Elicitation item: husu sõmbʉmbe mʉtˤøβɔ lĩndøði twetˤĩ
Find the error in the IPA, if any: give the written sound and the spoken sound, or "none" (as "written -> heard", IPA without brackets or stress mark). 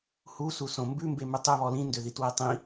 none